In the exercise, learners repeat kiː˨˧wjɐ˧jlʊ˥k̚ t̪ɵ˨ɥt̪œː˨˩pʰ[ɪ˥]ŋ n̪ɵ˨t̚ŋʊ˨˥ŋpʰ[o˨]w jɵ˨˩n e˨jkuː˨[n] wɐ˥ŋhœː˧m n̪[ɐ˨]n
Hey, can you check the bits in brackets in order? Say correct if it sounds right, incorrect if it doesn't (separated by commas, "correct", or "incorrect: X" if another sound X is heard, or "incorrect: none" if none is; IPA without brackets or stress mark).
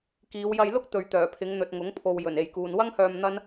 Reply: incorrect: ɪ˨˧, correct, correct, incorrect: ɐ˥